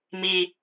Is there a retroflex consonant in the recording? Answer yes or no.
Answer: no